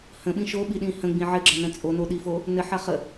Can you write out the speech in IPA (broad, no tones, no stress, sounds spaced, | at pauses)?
h ə̃ ɓ ĩ ʃ o ɓ i ɗ ĩ h ə̃ ɡ͡b ĩ ʕ ɘ ɡ͡ǁ ɐ n ə̃ t͡sʼ o n o ɗ i f o | n ɘ ħ ɐ χ ə